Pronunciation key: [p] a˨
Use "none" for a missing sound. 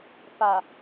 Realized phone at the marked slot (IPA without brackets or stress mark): p